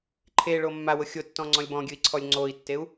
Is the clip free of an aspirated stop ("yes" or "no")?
no